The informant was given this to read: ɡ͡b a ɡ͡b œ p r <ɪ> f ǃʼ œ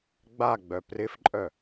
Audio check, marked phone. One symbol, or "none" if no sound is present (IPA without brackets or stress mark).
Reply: ɪ